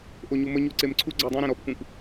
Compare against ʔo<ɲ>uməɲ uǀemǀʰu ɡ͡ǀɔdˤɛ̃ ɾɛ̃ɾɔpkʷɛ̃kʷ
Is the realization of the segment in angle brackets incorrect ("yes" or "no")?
no